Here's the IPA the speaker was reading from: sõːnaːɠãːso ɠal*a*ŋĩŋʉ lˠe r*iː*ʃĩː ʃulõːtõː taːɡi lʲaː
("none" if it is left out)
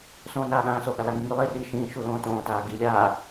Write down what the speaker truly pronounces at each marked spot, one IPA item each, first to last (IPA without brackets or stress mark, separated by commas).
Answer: a, iː